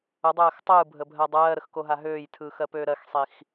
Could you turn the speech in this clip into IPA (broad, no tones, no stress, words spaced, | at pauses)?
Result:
ədˤɜːx tˤɯːbʱəbʱɜ dˤɜːɾəxkoɦa ɦøːjtʰɯːxɜpøː ɾɜxsˤix